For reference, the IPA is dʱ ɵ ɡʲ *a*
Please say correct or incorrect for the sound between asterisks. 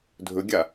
correct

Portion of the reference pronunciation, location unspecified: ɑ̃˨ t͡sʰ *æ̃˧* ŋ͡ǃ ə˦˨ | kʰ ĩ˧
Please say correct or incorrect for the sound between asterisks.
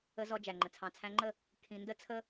correct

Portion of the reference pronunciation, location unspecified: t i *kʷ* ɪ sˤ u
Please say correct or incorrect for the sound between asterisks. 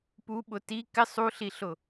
incorrect: k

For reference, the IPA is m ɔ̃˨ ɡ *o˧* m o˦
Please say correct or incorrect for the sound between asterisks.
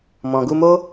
incorrect: u˧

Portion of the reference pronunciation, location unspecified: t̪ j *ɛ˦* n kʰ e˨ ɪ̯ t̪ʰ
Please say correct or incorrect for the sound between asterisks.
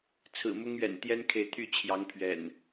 correct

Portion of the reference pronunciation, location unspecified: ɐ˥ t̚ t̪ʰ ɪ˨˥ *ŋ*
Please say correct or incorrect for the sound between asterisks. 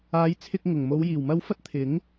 correct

